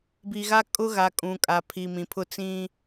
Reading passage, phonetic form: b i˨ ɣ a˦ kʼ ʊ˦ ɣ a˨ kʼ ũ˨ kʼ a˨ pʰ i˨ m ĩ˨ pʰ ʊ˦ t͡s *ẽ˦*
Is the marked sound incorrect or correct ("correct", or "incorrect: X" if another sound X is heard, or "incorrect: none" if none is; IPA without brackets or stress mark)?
incorrect: ĩ˦